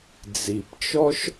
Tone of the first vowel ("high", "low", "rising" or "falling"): low